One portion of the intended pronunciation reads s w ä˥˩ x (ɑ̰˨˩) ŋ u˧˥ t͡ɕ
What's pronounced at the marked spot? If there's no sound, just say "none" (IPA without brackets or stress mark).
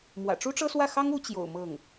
ɑ˥